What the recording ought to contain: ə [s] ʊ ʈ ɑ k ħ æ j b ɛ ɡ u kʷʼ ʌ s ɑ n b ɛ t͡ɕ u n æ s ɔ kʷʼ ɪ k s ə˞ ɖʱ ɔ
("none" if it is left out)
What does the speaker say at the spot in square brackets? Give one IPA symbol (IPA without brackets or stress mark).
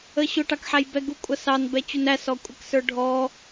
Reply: ɕ